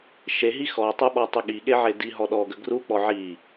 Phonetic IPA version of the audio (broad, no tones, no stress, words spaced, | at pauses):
ʃeɦi xɔtˤuɓɔtˤʏ ɠiɠeʕe diɦɔ ɗɔɡə ɡruk͡pɔ ʕi